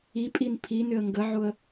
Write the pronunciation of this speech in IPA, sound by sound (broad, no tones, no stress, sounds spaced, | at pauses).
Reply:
i pʼ i n pʰ i n ʏ ə̯ ŋ ɡ ə ʕ ʊ ə̯